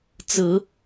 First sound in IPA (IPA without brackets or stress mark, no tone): t͡s